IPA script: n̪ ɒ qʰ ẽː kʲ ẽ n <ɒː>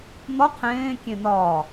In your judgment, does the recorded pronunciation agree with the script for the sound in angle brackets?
yes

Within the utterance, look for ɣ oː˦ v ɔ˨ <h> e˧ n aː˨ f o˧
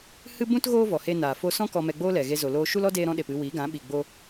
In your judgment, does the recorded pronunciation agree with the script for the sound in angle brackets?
yes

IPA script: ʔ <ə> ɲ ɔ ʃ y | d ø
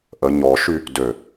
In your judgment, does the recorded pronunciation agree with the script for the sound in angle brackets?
yes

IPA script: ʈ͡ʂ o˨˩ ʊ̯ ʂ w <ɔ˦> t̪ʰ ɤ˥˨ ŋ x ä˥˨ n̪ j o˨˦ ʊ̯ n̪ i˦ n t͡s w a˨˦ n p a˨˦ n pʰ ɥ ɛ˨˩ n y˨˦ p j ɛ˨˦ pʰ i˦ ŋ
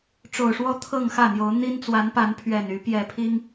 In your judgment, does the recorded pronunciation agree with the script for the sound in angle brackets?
yes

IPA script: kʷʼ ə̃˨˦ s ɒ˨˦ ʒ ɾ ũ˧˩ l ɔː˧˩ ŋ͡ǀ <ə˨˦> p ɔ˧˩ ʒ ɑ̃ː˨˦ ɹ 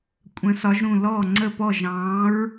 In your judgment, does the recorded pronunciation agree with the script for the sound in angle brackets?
no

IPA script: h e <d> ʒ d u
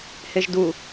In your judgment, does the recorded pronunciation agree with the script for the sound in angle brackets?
no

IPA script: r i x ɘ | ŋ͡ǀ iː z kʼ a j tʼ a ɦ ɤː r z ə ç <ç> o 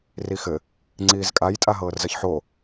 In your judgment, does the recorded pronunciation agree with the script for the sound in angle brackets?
no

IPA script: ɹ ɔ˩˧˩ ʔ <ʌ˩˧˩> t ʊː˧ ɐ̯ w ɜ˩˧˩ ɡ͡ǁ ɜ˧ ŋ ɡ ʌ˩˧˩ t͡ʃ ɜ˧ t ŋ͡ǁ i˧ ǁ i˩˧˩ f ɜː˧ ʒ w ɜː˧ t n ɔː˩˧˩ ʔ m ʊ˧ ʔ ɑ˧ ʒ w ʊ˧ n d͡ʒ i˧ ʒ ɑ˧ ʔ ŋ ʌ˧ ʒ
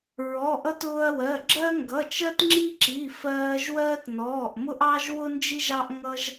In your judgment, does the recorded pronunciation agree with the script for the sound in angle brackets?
no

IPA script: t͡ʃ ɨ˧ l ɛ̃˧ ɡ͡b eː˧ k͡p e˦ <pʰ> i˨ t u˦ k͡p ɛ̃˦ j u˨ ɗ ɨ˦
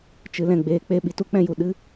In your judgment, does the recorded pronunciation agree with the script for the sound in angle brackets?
no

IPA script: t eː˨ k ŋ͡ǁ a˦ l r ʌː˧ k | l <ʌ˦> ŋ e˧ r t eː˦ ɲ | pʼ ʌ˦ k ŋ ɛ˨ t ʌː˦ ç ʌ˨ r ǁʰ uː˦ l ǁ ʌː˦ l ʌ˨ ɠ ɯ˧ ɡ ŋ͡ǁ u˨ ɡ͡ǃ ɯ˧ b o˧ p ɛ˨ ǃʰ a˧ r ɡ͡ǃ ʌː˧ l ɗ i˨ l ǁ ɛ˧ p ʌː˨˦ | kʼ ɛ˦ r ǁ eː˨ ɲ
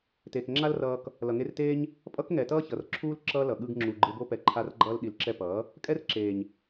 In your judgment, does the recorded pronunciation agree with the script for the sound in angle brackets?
no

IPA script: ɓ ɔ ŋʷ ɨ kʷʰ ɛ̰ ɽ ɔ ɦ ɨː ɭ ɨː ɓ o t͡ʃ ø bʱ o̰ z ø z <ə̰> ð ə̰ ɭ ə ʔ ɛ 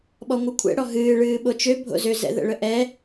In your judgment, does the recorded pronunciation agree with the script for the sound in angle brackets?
no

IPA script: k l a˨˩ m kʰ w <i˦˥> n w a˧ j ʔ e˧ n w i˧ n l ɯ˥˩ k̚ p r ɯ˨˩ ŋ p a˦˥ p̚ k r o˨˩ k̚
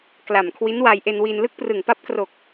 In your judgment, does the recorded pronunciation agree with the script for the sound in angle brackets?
yes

